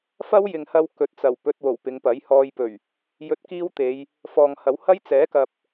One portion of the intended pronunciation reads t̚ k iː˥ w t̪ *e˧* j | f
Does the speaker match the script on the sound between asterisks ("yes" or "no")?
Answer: no